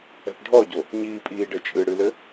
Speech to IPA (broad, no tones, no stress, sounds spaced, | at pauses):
ɛ̤ p ɖʱ ɔ ɟ o | ɲ iː pʼ iː ɖ ɘ t͡ʃʼ ɨ ɽ ɨ l ɘ